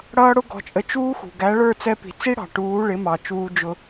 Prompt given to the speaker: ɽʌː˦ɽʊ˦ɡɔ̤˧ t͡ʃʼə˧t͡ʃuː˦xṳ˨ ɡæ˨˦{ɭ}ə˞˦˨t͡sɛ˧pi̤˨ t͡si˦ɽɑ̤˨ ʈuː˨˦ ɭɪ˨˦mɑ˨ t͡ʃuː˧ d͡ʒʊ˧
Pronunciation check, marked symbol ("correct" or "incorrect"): correct